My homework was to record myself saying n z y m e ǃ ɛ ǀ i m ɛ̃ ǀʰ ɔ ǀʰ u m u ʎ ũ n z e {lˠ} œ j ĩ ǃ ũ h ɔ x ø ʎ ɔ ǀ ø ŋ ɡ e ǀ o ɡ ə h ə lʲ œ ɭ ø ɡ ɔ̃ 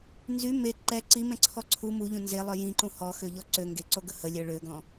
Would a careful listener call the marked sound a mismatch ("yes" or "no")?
no